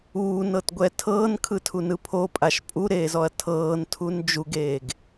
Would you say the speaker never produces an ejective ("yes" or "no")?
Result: no